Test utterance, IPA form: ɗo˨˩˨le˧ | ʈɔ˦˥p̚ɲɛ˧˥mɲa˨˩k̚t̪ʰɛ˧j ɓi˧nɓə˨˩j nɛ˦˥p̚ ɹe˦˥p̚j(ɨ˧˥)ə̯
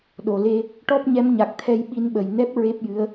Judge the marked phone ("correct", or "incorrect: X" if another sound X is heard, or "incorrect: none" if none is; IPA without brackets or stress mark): correct